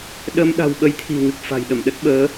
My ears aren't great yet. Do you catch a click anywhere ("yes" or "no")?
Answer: no